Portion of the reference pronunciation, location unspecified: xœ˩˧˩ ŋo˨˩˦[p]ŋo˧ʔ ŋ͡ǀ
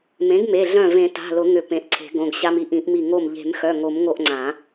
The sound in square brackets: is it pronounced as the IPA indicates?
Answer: no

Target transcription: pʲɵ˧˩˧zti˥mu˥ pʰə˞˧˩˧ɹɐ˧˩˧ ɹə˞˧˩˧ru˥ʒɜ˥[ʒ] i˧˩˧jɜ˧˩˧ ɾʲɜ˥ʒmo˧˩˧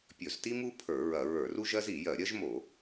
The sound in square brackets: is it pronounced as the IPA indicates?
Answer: no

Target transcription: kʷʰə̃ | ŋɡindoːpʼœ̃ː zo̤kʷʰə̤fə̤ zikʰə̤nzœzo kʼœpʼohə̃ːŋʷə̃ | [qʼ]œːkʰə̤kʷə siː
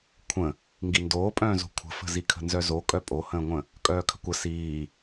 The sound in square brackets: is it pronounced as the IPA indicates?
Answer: no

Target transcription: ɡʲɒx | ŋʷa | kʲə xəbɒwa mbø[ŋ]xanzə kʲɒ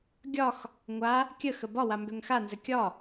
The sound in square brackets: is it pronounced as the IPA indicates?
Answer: yes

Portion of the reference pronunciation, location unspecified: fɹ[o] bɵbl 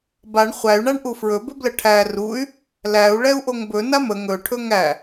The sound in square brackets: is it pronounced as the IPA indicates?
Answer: no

